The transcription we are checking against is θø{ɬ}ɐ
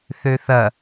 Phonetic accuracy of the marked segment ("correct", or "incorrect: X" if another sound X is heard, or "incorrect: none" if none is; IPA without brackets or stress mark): incorrect: θ